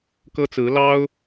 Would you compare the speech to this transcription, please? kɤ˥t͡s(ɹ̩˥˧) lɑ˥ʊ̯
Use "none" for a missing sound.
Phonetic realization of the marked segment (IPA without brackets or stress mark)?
ɹ̩˧˥